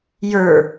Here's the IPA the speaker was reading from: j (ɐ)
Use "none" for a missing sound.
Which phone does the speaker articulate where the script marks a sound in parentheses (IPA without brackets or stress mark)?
ə˞